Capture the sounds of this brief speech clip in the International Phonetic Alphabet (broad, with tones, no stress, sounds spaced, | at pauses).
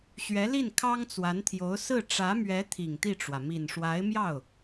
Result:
ɕ ɥ ɛ˧˥ l i˥˩ n kʰ ɑ˥ ŋ t͡s w a˧˥ n t̪ʰ j o˧˥ ʊ̯ s ɹ̩˥˩ ʈ͡ʂ ä˧˥ m ɥ ɛ˧˥ t̪ʰ i˨˩ ŋ t̪ i˥˩ ʈ͡ʂ w ä˩ m i˨˩ n ʂ w a˧˥ ɪ̯ m j ɑ˥˩ ʊ̯